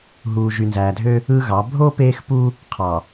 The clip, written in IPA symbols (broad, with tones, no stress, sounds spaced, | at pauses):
ɦ uː˨ ʒ y˨ n z æː˨ dʱ ø˦ | ɯ˦ ɣ ɑ˨˦ bʱ o˦ p eː˦ x p u˦ | qʰ ɑ˨